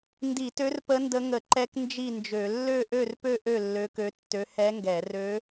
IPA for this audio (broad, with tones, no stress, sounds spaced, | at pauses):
n d i˧˩˧ t ø˧˥ r p ə˧˥ n d ə˧˥ ŋ ə˧˩˧ ǃ ɛ˧˥ k n d͡ʒ i˥˨ n d͡ʒ ø˧˩˧ lː ø˥˨ ʔ ø˥˨ r p ø˥˨ ʔ ø˥˨ lː ø˧˥ k ø˧˥ tː ø˧˥ h ɛ˧˥ ŋ ɡ ɛ˧˩˧ r ø˧˥